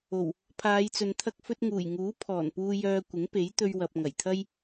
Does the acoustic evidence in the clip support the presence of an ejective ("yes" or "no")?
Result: no